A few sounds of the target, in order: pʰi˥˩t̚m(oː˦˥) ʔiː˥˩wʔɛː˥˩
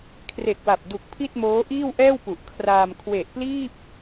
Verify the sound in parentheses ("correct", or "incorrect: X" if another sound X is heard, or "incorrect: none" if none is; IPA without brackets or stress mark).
correct